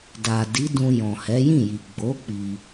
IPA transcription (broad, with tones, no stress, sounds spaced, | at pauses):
d a˨ d i˨˦ d ũ˧ j ɔ̃˨ h ɛ˨˦ j ĩ˦˨ j i˨ ɡ͡b o˨˦ k͡p i˧